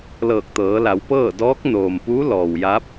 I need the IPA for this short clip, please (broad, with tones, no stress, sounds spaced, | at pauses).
l ɤː˧˩ k̚ t̪ ɤː˩˧ l a˩˧ w p ɤː˥˨ d ɔː˧˥ k̚ n oː˩ m p uː˧˥ l ɔː˩ w j a˧˥ p̚